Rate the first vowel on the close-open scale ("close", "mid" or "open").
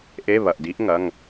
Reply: mid